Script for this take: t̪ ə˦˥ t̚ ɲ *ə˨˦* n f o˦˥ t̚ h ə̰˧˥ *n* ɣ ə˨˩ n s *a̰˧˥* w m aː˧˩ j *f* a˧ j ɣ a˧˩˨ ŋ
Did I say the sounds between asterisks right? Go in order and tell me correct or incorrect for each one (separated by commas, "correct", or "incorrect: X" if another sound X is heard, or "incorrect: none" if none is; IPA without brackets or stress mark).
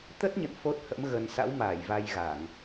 incorrect: ə̰˧˨, incorrect: m, correct, incorrect: v